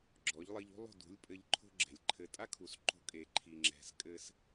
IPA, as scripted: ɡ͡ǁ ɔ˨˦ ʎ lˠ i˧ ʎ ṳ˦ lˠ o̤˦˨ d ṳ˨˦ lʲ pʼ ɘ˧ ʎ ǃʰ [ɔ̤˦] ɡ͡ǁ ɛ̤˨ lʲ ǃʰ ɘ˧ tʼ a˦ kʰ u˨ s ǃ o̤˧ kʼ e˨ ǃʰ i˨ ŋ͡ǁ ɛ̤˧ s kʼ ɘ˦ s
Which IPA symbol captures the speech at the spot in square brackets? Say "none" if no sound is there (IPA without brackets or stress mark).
o̤˦